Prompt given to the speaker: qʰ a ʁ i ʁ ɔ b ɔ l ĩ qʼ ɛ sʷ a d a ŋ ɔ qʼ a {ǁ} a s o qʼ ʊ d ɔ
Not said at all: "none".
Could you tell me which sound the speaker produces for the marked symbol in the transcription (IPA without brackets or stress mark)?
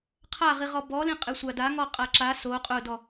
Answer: ǁ